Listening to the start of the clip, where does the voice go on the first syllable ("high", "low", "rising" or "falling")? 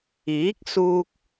rising